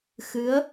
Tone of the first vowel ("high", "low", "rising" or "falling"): rising